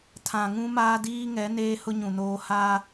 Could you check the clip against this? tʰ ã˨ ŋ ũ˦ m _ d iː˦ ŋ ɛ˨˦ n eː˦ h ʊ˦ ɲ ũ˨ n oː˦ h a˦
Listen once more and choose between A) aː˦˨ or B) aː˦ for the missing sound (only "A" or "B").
B